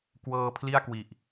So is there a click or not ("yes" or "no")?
no